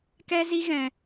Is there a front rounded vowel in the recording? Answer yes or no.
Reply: no